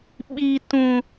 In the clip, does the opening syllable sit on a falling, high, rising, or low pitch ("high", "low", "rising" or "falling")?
high